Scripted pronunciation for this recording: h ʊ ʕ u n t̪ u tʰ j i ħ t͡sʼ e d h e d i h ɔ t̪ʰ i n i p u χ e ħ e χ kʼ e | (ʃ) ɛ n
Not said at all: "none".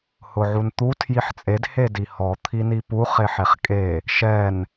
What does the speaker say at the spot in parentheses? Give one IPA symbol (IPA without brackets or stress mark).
ʃ